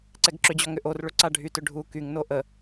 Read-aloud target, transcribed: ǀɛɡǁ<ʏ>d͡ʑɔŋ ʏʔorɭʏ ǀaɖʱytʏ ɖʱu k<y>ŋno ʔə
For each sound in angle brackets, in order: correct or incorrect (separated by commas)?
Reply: correct, correct